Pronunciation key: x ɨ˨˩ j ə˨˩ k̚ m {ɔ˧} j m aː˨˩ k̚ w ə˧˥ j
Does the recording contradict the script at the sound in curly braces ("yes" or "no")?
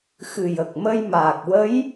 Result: yes